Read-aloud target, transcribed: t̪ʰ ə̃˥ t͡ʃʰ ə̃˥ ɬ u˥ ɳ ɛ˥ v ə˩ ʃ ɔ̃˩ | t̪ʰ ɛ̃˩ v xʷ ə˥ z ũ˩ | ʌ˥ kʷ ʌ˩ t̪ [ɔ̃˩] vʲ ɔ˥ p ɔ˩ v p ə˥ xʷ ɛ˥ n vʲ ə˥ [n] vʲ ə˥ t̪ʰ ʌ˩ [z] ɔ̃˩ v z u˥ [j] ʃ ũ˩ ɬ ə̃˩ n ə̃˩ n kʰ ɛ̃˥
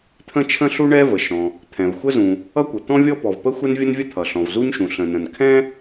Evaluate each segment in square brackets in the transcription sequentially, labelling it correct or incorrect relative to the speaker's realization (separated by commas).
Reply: incorrect, correct, incorrect, incorrect